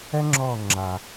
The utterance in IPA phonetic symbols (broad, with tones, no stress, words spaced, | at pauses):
ɛ˥ŋ͡ǁɔː˦˨ ŋ͡ǁa˨